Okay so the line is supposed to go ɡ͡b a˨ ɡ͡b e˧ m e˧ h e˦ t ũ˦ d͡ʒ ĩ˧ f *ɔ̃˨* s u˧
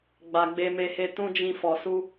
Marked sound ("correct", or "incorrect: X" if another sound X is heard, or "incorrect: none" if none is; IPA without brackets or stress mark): incorrect: ɔ˨